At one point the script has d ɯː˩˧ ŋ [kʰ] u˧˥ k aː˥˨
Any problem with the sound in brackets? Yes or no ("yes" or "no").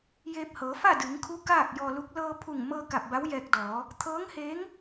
no